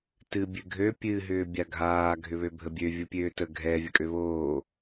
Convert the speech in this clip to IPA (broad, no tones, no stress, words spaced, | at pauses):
tɨ bʲɨɡʱø pʲɨ ɦʏːbʲaɡʱaː ɡʱʏβøbʱəbʲø vʲʊpʲøːtə ɡʱɛ vʲəkʼøβoː